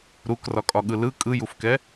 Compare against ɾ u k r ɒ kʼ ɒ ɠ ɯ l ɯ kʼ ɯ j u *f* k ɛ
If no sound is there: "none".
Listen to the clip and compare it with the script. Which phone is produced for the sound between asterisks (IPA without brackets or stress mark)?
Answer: f